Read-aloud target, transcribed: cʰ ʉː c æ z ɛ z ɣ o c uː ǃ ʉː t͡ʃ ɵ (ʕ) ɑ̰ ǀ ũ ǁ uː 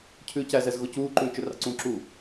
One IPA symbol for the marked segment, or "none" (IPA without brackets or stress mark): r